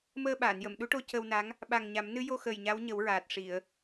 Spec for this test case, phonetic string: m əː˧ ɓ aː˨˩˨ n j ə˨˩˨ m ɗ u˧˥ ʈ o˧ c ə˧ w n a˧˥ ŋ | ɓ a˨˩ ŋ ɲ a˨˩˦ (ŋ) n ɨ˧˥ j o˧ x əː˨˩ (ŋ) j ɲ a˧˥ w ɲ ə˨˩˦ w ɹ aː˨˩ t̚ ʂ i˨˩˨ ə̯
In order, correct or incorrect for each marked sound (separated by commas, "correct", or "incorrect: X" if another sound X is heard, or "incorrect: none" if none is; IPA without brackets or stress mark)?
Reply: incorrect: m, incorrect: none